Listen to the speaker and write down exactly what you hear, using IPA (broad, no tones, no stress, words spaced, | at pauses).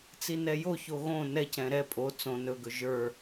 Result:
t͡sinɛjoço ɣõ nɛcɛ̃ ɾɛ pʼo t͡sõ nɵɡɵ ʒə˞